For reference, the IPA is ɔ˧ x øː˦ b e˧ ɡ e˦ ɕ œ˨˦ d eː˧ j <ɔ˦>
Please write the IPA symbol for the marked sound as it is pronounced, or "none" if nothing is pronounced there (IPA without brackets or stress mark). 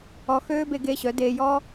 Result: ɔ˦